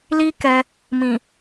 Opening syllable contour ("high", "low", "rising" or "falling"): high